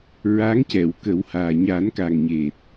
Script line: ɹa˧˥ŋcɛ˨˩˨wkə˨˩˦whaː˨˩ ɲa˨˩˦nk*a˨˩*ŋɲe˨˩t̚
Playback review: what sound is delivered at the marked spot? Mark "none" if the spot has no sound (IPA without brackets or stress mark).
a˨˩